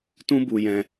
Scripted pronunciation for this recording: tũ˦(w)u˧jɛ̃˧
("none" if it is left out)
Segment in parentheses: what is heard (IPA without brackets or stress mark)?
b